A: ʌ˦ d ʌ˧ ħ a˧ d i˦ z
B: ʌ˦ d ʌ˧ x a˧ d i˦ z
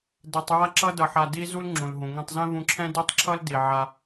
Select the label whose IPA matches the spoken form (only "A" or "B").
A